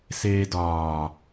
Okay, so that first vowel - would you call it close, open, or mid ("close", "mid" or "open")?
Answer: mid